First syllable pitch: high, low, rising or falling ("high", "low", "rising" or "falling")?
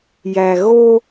low